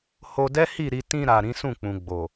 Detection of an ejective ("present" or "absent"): absent